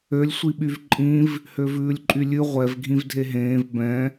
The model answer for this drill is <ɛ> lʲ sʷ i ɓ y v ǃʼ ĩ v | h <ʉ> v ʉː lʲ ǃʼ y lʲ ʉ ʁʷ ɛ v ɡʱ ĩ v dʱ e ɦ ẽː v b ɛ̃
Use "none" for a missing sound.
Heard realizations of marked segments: ø, ø

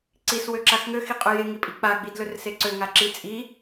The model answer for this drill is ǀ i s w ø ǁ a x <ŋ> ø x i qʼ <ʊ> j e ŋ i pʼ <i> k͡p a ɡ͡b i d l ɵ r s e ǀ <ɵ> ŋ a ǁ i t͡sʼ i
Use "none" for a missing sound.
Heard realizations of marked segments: ŋ, ɵ, i, ø

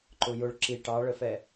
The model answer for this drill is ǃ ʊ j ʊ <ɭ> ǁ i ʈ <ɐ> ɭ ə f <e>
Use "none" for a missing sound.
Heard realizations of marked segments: ɭ, ɑ, ɛ

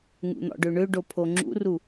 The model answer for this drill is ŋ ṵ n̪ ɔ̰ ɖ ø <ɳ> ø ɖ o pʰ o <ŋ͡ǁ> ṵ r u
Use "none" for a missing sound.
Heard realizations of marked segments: ɳ, ŋ͡ǁ

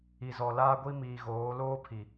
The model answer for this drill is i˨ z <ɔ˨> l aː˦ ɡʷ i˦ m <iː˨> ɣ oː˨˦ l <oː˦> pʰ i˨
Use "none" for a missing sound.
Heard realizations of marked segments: ɔ˨, iː˨, oː˦

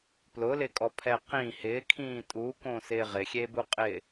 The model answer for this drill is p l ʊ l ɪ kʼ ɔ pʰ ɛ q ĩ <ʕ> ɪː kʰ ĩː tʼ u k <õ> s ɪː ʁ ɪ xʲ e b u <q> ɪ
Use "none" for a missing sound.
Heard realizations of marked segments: h, õ, qʼ

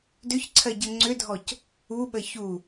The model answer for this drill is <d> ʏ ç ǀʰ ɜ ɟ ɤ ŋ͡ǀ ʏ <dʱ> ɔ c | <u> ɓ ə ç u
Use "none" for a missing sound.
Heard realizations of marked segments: d, dʱ, u

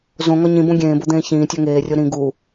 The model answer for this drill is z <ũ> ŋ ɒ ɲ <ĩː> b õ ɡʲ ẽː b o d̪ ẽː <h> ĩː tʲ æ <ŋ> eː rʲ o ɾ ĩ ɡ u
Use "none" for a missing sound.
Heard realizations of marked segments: õ, ĩ, ç, ŋ

